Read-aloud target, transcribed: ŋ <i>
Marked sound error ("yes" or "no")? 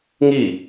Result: no